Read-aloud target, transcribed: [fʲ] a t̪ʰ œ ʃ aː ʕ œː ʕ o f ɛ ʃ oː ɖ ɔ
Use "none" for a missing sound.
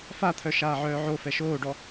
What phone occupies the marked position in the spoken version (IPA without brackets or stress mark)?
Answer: f